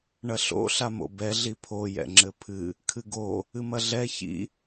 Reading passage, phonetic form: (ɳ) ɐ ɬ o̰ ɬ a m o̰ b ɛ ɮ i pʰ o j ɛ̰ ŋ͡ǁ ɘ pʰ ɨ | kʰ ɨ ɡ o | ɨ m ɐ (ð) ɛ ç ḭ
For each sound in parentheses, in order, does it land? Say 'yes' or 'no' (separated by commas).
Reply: yes, no